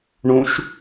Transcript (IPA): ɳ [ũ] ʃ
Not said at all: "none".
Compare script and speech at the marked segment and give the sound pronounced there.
ũ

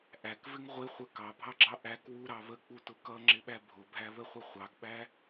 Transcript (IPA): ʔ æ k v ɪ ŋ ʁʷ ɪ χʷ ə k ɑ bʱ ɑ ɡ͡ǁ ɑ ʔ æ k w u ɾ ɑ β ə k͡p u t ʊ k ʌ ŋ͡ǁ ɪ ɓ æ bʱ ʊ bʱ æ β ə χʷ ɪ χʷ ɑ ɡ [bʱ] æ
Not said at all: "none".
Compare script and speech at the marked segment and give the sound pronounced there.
ɓ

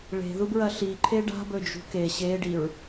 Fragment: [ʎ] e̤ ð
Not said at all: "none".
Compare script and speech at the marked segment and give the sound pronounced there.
ɭ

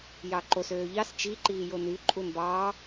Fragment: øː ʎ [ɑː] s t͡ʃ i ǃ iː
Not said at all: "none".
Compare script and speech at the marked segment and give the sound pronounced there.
ɑ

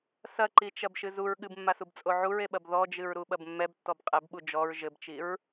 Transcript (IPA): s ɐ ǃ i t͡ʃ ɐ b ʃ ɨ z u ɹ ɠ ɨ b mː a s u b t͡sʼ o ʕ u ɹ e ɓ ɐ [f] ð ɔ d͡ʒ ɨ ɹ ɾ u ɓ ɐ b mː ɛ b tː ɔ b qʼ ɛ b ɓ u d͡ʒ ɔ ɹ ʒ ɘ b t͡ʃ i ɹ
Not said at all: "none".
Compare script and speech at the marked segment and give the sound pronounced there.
b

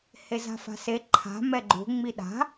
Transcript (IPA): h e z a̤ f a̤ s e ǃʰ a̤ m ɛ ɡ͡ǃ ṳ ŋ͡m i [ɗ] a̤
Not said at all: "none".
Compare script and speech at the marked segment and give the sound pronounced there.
ɗ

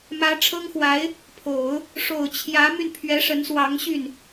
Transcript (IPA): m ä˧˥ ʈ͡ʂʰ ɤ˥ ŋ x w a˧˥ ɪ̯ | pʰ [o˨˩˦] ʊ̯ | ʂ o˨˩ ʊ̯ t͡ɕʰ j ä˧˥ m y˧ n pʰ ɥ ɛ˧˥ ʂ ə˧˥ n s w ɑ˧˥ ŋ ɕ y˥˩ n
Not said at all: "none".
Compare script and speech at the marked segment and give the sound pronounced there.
o˨˩˦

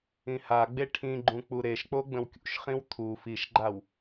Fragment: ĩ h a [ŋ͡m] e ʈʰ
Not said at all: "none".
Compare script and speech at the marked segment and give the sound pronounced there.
ɡ͡b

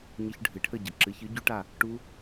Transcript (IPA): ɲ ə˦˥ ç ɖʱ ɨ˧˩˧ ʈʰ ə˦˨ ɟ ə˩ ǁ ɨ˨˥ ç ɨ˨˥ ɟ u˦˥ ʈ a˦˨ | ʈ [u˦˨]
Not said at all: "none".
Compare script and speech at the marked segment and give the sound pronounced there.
u˦˥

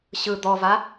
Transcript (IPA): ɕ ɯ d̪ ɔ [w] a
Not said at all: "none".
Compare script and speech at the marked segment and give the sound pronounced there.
v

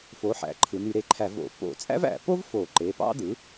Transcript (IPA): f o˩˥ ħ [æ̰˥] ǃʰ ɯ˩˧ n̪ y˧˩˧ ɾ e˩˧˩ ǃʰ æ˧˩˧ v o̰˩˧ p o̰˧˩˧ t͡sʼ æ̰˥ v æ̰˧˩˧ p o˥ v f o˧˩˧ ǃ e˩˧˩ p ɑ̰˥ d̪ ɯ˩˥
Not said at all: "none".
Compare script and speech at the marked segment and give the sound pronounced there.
æ̰˩˥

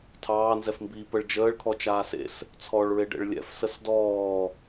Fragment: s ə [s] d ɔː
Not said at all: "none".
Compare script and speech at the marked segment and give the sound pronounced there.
s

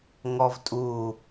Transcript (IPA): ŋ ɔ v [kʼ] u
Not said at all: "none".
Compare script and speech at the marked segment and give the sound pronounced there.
tʼ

